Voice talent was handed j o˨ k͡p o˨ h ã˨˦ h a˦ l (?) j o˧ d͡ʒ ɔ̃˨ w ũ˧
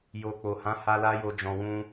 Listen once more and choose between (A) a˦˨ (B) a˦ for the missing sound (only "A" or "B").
B